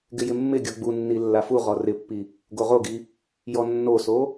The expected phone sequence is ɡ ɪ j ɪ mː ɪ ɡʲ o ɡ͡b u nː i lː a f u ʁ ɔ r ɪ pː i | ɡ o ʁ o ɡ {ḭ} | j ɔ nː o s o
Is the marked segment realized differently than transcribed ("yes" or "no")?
yes